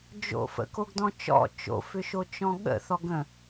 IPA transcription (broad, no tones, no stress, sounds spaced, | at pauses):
d͡ʒ o̰ f ə̰ k o ɡ d ɔ̃ t͡ʃ ɔ̰ t͡ʃ o̰ f ʏ ʃ o t͡ʃ ɔ̃ ɠ ə̰ θ ɔ ɡ ə̃